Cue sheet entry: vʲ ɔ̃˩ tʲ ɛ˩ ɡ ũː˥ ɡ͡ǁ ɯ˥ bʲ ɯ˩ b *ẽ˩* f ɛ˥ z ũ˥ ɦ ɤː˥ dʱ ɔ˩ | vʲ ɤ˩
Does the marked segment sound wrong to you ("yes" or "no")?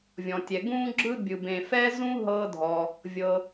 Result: no